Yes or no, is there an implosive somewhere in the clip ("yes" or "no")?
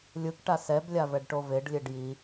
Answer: no